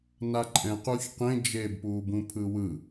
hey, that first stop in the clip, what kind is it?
click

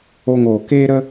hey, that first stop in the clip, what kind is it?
plain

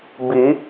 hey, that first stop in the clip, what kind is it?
plain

